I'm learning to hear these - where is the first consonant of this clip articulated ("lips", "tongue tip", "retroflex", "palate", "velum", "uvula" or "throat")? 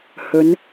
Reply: throat